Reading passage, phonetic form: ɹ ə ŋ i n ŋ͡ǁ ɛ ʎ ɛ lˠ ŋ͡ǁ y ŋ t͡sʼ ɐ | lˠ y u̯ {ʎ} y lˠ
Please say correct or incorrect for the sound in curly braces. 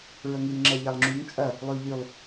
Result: correct